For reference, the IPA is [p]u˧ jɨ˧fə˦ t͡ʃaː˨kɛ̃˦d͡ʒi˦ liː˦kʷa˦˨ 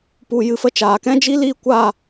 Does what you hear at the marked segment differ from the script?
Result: no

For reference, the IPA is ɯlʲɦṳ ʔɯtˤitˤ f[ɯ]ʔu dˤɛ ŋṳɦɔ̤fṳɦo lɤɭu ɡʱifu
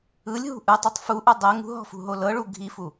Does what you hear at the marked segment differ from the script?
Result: yes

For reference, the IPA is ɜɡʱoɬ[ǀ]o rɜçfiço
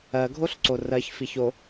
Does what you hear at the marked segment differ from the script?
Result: no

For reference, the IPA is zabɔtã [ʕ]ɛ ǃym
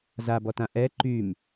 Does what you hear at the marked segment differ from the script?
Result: yes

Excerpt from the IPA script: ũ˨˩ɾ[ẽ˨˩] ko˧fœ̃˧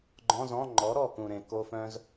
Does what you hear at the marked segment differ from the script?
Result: no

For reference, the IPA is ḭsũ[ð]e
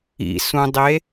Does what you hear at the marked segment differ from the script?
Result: yes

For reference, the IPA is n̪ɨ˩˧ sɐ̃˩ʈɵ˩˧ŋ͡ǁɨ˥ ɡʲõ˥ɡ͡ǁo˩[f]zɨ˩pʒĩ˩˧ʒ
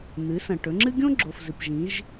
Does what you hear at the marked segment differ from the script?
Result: no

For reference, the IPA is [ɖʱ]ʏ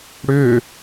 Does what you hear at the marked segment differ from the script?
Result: yes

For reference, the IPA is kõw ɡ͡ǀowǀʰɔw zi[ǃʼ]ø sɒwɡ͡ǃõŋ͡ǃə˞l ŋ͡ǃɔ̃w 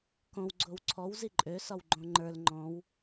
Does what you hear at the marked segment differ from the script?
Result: no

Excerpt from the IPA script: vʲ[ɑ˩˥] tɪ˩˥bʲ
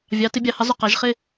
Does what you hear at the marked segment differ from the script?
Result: no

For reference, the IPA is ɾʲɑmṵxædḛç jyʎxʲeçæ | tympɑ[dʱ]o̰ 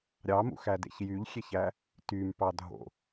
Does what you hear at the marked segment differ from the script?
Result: no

